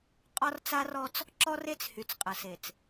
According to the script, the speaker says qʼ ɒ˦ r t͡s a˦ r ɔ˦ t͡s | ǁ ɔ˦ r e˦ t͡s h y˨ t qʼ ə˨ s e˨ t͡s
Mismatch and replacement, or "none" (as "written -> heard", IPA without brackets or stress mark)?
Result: t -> t͡s